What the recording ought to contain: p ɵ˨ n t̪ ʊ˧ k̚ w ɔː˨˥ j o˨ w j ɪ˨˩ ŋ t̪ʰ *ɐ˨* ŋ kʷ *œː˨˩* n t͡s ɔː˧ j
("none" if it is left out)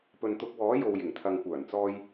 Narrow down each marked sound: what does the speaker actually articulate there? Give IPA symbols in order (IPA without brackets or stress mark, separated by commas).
ɐ˨, œː˨˩